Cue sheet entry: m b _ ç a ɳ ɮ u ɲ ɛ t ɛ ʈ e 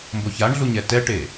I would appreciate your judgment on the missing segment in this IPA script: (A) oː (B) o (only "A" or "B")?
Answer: B